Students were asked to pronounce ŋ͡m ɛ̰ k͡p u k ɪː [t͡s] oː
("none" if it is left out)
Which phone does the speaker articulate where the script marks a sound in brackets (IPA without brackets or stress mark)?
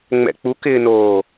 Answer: n